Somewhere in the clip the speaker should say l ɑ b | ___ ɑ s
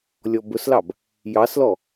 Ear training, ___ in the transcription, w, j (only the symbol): j